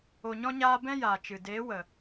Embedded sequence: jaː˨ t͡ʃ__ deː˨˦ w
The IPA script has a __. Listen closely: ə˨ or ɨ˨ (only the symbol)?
ɨ˨